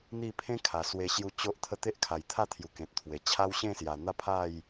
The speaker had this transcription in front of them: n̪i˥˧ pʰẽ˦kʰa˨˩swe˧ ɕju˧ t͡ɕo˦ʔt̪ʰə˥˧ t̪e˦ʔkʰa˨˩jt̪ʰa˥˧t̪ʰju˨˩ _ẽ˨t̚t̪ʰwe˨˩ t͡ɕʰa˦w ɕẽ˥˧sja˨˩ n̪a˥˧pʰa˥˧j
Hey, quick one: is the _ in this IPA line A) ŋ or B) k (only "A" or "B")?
B